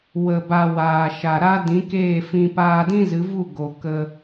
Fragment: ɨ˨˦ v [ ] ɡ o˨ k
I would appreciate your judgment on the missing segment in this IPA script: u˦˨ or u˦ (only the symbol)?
u˦˨